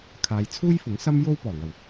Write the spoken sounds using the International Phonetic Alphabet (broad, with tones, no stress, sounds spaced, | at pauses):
kʰ aː˨˧ j t͡sʰ uː˥ j f ʊ˨˥ ŋ s ɐ˥ m j o˥ w p ɔː˨˩ ŋ ɐ˨˩ w